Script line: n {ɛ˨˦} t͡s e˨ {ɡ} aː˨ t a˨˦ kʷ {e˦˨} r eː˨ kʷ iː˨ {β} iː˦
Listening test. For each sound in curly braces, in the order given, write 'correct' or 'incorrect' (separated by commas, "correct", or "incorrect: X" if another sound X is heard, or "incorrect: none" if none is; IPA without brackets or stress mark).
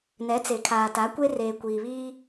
correct, incorrect: kʰ, incorrect: e˦, correct